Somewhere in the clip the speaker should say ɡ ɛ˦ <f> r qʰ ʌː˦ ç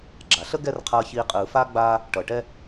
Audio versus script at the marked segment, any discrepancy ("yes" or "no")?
yes